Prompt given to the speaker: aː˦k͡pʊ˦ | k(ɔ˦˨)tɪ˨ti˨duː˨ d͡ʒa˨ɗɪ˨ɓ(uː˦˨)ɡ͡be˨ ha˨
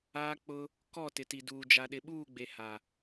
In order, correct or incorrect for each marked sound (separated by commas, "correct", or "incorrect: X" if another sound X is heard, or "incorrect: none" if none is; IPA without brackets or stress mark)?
correct, correct